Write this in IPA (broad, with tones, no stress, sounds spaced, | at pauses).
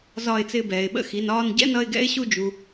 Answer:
z ɒ˧˩ ɪ̯ t͡s ɪː˧˩ b ɛː˩ ɪ̯ ɓ ə̰˥ x i˩˧˩ n ɒː˥˩ n ɟ ɛ̰˥ n ʌ˥˩ ɪ̯ ɡ ɛ̰˥ ɪ̯ ɕ u˥˩ d͡ʒ u˩